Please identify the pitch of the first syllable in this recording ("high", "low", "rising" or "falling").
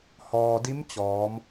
low